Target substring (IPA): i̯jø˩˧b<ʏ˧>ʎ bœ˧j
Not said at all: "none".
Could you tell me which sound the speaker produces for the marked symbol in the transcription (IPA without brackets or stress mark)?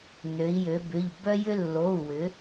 ʏ˩˧˩